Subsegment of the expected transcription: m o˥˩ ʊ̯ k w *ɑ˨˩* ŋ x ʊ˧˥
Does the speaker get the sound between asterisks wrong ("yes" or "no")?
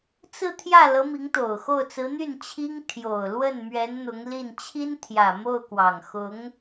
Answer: no